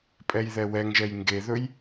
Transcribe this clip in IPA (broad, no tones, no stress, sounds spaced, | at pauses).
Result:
pʼ ɛ j ð ɛ w ɛ ŋ ʒ ɛ j ŋ ɡ e ð ɵ j